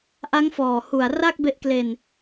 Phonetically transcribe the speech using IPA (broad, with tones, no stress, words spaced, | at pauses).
ʔa˦˥ŋfɔː˨˩hu˨˩a̯ ra˥˩k̚be˦˥ʔkle˧n